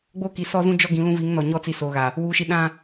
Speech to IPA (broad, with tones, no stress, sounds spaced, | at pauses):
ɡ͡b oː˦ k i˨ s ɔ˦ z ũ˦ d͡ʒ ɔ˦ ɡ ĩ˨˦ l ũ˦ v i˨˦ ŋ n ɔ˨ ɲ ɔ˦ t͡s i˨ s oː˨ ɣ a˨ | w uː˨ ʃ i˨ ɗ ã˦